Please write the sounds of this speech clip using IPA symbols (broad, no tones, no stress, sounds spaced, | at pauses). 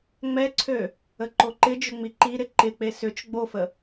ŋ͡m ɛ ǀʰ ø | ə ǃ o ǃ ɪ d͡ʒ ʏ ŋ͡m i ǃ i ɾ ɪ ǃ ɪ k͡p e s ʏ t͡ʃ ɡ͡b o f ə